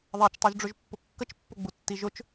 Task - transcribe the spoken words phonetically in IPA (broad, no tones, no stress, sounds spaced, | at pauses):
ðˤ a t͡ʃ tˤ ʉ ʒ ɖ͡ʐ ʊ ʒ pː ʊ kː ə t͡ʃ pː ʊ ɡ͡b u tː i ʒ ʊ t͡ʃ